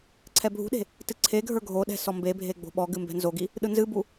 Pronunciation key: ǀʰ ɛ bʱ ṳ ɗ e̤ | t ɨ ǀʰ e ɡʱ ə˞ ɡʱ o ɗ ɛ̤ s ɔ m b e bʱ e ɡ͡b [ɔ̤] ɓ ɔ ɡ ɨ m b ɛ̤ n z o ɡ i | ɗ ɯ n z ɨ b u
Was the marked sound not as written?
yes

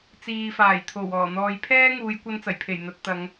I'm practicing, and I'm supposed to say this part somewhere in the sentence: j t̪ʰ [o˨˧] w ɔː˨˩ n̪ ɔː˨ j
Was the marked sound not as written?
yes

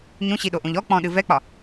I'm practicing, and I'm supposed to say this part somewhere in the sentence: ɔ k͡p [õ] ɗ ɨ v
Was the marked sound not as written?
yes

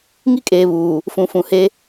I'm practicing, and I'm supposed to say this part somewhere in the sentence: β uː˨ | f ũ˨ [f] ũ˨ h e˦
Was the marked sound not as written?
no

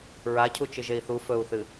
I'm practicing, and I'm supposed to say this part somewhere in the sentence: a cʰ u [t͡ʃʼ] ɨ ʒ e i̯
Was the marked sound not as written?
yes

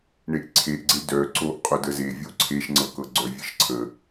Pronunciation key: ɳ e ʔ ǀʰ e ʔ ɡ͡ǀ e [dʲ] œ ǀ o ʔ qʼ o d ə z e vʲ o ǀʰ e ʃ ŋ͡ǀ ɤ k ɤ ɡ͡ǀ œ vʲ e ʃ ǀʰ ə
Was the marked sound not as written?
yes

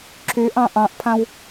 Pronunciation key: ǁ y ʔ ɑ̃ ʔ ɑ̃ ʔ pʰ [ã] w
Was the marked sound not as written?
no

